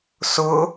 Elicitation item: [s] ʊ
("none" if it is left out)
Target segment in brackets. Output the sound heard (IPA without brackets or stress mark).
s